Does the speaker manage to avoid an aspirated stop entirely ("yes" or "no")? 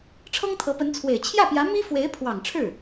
no